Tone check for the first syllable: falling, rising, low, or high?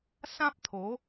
high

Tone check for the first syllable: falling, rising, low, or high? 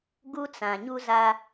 high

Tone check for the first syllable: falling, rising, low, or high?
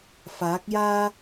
rising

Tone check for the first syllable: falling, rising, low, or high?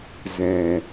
low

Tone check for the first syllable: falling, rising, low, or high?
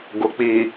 low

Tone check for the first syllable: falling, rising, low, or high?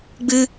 high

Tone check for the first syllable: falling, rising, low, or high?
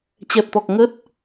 low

